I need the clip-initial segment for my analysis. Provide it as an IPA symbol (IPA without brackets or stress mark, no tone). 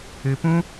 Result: ɨ